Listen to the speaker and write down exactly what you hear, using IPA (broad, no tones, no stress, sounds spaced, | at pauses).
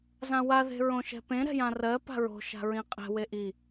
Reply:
z ã w a ð e̤ ɹ õ ʃ ɛ̤ p ẽ ɾ ɛ̤ j ã r ɜ p a̤ ɹ o̤ ʃ a̤ ɹ ĩ qʼ ɛ̤ w e ʔ i